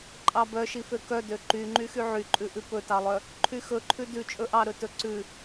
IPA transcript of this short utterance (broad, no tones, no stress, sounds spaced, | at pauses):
ǃʼ ɑ b œ ʃ i f ø k œ d ø ǃ y ŋ͡ǃ y x y ʕ y ǃʼ ʉ ʔ ʉ p ɵ t ɑ lˠ œ | ǃʰ y x ɵ ǃʰ ʉ d ʉ t͡ʃʼ ɵ ʔ ɑ ɾ ɵ t ɵ ǀ ʉ